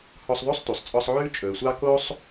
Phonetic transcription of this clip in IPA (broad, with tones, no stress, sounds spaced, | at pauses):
h ɔ˦ sˤ ðˤ o˥ sˤ tʷ œ˨ sˤ t͡sʼ ɔ˦ sˤ ʕ ʉː˥ t͡ʃʼ ɵː˨ sʷ ɑ˦ k o˥ sˤ